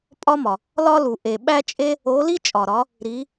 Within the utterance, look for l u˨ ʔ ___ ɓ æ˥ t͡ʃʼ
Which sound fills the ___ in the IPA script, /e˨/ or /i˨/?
e˨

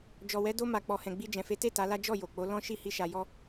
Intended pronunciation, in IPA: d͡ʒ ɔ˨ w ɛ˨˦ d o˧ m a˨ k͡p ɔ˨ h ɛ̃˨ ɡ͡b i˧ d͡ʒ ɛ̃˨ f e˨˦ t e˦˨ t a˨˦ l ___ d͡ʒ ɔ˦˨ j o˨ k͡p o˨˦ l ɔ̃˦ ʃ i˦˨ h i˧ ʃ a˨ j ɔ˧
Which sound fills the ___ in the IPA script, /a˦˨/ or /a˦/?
a˦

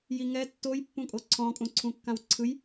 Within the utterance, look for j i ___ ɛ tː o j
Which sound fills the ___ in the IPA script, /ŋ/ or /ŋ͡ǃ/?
ŋ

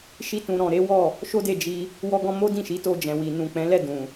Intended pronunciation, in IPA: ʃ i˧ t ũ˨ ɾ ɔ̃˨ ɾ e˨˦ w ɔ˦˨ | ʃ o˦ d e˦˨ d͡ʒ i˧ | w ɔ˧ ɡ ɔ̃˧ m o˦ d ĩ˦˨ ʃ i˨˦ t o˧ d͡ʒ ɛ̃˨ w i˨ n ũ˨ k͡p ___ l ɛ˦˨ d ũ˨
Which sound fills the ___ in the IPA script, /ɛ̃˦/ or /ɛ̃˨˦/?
ɛ̃˨˦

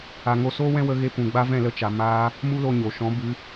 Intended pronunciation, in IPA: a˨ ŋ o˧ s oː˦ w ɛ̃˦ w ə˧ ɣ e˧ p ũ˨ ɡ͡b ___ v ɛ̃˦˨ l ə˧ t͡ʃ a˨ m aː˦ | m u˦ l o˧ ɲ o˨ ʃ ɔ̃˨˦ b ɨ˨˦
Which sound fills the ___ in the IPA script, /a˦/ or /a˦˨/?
a˦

